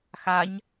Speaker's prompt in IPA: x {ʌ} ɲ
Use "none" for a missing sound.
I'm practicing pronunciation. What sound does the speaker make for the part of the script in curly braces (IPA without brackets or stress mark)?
a